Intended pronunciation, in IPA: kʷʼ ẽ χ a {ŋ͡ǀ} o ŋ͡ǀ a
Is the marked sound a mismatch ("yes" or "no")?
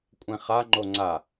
yes